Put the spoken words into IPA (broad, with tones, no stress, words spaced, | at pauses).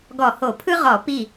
ɡɔ˧˩˧ho˧˩˧pʰɯ˥ʁɔ˧˩˧ pi˥˩